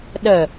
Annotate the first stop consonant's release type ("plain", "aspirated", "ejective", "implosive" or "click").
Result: implosive